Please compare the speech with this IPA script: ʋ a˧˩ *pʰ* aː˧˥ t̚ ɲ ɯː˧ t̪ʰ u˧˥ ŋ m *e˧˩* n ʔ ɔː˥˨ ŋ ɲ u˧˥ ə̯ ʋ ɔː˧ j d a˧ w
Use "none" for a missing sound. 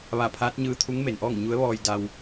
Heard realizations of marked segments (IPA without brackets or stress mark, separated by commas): pʰ, e˩